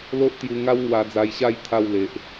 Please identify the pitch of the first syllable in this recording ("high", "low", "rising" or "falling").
high